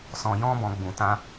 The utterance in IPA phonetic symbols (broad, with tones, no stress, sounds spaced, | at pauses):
s ɔ̃˧ j ɔ̃˦ b ɔ̃˧ ɡ͡b ũ˨ t ã˧